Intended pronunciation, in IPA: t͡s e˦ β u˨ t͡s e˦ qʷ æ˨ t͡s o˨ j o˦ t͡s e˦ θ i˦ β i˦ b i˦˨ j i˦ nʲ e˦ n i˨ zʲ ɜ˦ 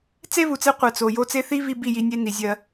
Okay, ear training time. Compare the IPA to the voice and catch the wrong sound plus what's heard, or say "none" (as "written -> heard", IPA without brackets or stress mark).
æ˨ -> ɜ˨